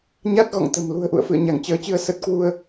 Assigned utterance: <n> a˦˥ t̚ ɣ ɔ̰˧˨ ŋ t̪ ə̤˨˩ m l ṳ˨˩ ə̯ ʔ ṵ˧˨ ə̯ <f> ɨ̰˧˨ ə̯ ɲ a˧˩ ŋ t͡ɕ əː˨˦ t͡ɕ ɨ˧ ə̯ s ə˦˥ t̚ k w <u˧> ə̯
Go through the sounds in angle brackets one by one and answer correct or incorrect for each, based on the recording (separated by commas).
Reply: incorrect, correct, correct